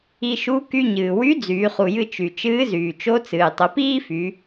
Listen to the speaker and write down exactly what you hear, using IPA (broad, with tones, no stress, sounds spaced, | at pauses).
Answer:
i˧ ʃ u˧˥ k y˧ ɲ ɨː˩ w y˧˥ d͡z yː˩˧ χ u˩ j ɨ˧ t͡ʃ y˩ t͡ʃ ɨː˧˥ z yː˩ t͡ʃ o˧˥ t͡s ɨː˩ tˤ ə˩˧ p iː˥ f y˩˧